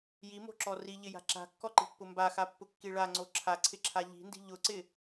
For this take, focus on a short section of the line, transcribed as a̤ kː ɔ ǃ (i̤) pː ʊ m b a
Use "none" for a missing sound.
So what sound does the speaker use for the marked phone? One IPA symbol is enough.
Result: i̤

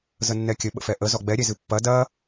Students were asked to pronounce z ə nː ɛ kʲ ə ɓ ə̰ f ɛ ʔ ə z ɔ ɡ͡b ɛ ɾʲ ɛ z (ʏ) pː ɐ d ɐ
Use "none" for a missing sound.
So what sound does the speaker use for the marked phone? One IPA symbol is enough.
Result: ɨ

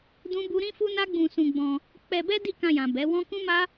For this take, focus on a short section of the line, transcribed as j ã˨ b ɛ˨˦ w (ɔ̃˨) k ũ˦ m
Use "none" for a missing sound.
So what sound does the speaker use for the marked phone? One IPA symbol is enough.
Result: ɔ̃˦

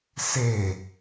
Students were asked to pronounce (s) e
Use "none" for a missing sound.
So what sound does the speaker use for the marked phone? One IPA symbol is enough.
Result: s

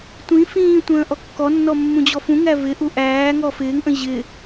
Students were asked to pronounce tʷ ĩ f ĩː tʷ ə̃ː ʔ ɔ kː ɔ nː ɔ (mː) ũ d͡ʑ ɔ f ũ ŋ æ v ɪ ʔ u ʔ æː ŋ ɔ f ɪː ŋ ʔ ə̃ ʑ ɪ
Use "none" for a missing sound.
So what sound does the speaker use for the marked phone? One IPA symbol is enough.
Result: mː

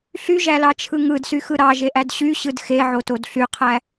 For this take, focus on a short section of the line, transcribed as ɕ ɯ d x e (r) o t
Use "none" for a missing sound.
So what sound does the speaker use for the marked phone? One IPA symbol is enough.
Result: ʕ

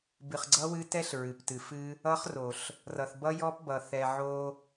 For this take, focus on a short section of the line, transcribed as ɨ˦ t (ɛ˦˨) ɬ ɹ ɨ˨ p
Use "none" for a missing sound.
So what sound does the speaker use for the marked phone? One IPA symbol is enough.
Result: ɛ˦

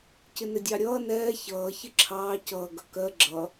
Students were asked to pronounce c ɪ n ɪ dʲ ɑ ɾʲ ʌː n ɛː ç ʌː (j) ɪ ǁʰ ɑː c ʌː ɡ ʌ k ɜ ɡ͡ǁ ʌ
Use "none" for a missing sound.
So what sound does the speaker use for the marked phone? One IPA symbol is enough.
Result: ç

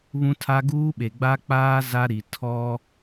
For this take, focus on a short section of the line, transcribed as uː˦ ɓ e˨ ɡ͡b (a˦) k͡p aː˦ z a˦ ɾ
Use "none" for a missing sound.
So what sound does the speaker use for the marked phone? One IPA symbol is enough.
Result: a˦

